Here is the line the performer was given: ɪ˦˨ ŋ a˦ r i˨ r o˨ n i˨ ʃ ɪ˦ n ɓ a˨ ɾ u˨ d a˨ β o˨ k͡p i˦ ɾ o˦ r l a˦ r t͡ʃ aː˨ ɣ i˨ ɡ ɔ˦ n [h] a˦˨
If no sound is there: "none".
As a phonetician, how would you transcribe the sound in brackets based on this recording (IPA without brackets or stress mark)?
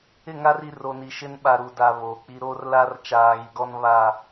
β